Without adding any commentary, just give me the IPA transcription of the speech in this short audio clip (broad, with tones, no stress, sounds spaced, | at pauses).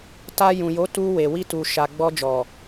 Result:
t a˧ j ũ˨ j o˨˦ t u˧ w e˨ w i˧ t u˨ ʃ a˨ ɡ͡b ɔ˧ d͡ʒ ɔ˨